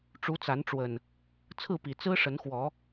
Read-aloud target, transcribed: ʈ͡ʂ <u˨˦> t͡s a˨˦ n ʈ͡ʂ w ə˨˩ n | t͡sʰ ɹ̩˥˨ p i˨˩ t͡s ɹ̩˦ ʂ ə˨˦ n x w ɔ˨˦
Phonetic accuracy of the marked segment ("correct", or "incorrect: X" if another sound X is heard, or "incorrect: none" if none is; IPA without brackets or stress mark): correct